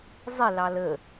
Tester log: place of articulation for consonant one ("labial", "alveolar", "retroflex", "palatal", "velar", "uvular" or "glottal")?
alveolar